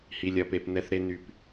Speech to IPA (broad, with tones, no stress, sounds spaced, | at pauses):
h i˨ lʲ ɐ˨ p e˨ p n ɛ˨ θ ɾ e˨ n y˨ p